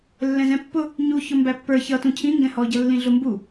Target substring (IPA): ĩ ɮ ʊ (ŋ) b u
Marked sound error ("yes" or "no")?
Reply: yes